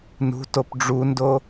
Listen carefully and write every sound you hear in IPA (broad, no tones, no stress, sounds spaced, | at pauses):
n ṳ t o p ɖ͡ʐ u n d o